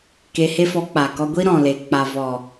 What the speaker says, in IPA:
k e˧ h e˦ f ɔ˧ k͡p a˨ k ɔ˧ ɡʷ i˦ ɾ ɔ̃˨ l e˨ k͡p a˨ v ɔ˨

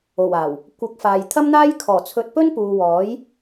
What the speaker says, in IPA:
o˨˩ w aː˨˩ w | kʷ ɐ˨˥ k̚ f aː˨ j t̪ʰ ɐ˥ m n̪ aː˥ j kʰ ɔː˨˩ t͡sʰ ɵ˧ t̚ p ɵ˥ n p uː˨ w ɔː˨˥ j

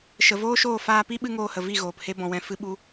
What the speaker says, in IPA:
ʃ ə˨ v oː˦ ʃ oː˦˨ f aː˧ p i˦ ɓ ɨ˦ ŋ oː˧ h ə˨ v i˦˨ ɣ oː˨ p h e˦ b ɔ̃˧ w ɛ̃˧ f ɨ˦ ɓ u˦

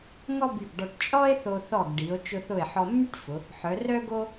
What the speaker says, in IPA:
ŋ ɔ˥ b y˧˩ ɡ ɖ ɔ˧ ʈ t͡ʃʼ ɔ˥ e̯ θ o˧ θ ɔ˧˩ ɡ ɖ i˩˧ o̯ t͡ʃ ʊ˧ θ ʊ˧˩ e̯ ħ ɔ˧ mː y˥ ʈ f ʊ˩˧ | ħ œ˩˧ r œ˥ ɡ o˥

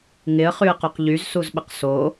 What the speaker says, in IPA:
ŋ ɪ ə̯ χ y ə̯ q o q ʎ y z s u z ɓ ə q s o

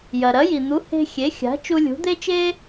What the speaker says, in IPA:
j ɐ˩ ɾ ɐ˩˥ j i˩ n̪ u˩˥ h e̤˧ xʲ e˩˥ xʲ a̤˩˥ t͡ʃ u˧ lʲ ṳ˩˥ d̪ e˥ t͡ʃ e˥

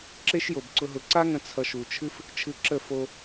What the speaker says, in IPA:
ǁ e˦ ʃ j o˨ b ǀ ʊ˧ ɦ ʊ˧ ǀ a˦ ŋ ə̃˧ t͡sʰ ʌ˧ ʃ u˨ t͡ʃʰ ɨ˦ f | t͡ʃʰ ɨ˧ ǁ ə˦˨ f o˧

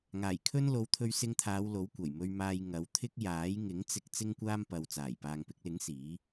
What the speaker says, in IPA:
ŋ aː˨˩ j kʰ ɵ˥ n l o˨˧ w t̪ʰ ɵ˧ ɥ s ɪ˧ ŋ t̪ʰ aː˨˧ w l o˨˥ w kʷ ɐ˨˩ j m ɵ˧ ɥ m aː˧ j ŋ ɐ˨˥ w t̪ʰ ɪ˥ k̚ j aː˨˥ j ŋ ɪ˨˥ ŋ t͡s ɪ˧ k̚ t͡s ɪ˥ ŋ kʷ aː˥ m p ɐ˨ w t͡s aː˨˩ j p aː˨ ŋ p ɪ˧ k̚ l ɪ˨˥ ŋ s iː˨˥

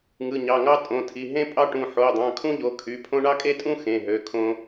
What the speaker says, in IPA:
ŋ ɯ˩˧˩ ɲ ɑ˩˧˩ ŋ ɑ˥ tʼ õ˩˧˩ tʰ i˩˧˩ ɦ ẽ˥ pʼ ɑ˥ ʈ ũ˩˧˩ ħ o˩˧˩ dˤ ɑ̃˩˧˩ kʰ ũ˥ ʎ o˩˧˩ kʰ y˩˧˩ pʰ õ˥ ɳ ɑ˥ kʼ e˥ tʼ ũ˥ x ẽ˩˧˩ ɦ ø˩˧˩ kʰ õ˥

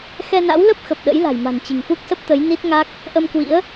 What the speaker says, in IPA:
x ɛ˧ n a̰˧˥ w l ə˦˥ p̚ x ə˨˩ p̚ ɗ ə̰˧˥ j l a̤˨˩ j m a̤˨˩ n t͡ɕ i̤˨˩ ŋ f u˦˥ k̚ s ə˦˥ p̚ t̪ ə˨˦ j n i˦˥ t̚ ŋ a˦˥ k̚ | ʔ ə˧ m k w ḭ˧˥ ə̯

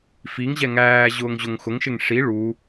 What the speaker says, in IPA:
f i ŋ ʑ ɛ ŋ æː ʑ ʊː ŋ ʑ ʊ ŋ x ʊ ŋ ʃ ɪ ŋ ʂ i ɭ u

